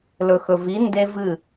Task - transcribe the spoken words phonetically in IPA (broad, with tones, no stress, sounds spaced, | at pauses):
l ɵ˨ x ɵ˨ v i˨˦ n d e˦ v ɨ˦˨